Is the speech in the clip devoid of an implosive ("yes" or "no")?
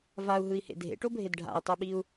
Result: no